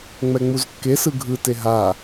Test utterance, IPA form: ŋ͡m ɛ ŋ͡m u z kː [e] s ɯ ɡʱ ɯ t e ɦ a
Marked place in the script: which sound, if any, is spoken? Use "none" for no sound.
e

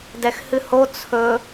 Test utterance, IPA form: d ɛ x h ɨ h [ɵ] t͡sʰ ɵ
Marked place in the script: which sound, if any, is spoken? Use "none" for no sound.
o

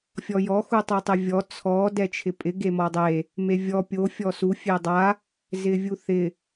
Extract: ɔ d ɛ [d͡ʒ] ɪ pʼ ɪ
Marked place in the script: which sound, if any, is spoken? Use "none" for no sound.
t͡ʃʰ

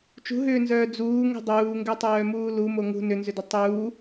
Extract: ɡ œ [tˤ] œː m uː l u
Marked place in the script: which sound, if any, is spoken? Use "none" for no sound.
tˤ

